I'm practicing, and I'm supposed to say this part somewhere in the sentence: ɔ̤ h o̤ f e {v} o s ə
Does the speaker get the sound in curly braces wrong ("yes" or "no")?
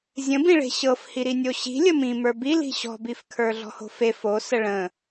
yes